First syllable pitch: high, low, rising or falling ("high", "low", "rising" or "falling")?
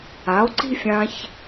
rising